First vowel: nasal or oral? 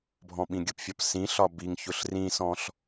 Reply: nasal